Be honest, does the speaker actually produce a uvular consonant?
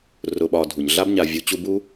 no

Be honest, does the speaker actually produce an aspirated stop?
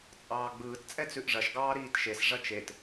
no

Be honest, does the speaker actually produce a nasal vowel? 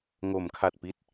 no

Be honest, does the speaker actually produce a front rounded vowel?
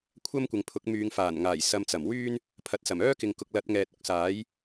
yes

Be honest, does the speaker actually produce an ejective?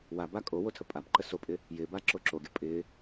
yes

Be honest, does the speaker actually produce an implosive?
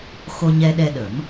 yes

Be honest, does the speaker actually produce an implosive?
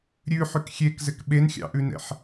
yes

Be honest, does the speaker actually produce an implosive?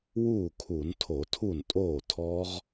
no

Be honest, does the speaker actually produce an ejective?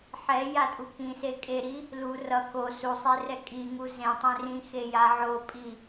yes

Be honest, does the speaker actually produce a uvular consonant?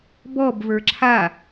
no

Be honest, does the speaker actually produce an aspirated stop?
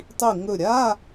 no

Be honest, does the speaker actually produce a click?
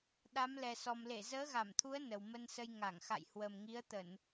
no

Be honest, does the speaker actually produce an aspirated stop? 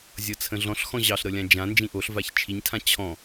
yes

